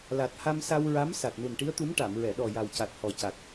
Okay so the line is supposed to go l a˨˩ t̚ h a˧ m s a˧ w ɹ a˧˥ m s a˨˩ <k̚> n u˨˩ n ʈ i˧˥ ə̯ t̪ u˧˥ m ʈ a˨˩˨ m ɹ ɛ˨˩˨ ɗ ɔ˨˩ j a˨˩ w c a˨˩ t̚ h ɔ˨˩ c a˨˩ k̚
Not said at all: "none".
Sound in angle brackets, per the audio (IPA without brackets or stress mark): t̚